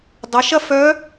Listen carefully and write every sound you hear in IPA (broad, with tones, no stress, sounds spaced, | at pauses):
dˤ ɐ˩˧ ʃ ɐ˥ f œ˧˥